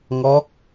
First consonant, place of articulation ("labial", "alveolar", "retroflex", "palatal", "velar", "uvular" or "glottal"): velar